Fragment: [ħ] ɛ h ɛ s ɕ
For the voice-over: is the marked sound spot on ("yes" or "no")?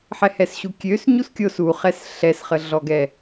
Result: yes